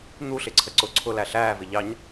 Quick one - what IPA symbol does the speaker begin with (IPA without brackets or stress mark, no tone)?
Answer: n̪